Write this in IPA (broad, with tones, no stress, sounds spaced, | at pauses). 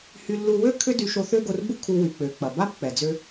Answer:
h y˧ lː u˧ w ø˥ kʰ ʏ˥ d y˧ ʃ o˧ θ ø˥ ɡ o˧ r b u˥ kʰ u˧ w y˩ k͡p ø˩ k͡p ɐ˩ b a˥ b k͡p ɛ˩ d͡z ø˧